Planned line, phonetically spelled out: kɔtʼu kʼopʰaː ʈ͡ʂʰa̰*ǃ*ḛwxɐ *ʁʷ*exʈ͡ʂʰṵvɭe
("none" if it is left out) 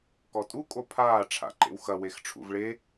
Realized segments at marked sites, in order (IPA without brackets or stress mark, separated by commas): ǃ, w